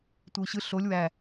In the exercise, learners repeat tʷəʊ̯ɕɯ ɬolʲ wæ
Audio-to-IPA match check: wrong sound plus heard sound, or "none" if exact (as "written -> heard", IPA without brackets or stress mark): none